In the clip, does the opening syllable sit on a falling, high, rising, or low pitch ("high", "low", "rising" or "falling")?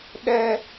high